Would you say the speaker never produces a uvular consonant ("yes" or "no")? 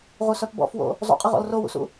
no